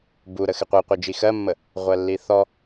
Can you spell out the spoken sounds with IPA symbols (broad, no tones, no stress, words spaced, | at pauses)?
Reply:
buɾə xɪqʷiqʷi d͡ʒixɜmːə | ʁʷɜlːiθɔ